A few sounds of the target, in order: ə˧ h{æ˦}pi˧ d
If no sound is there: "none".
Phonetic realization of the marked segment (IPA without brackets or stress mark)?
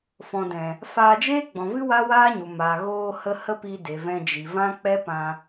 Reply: ə˦